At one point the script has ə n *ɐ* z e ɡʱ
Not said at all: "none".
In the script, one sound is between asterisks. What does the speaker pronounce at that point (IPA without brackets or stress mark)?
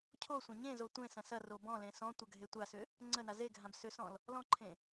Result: a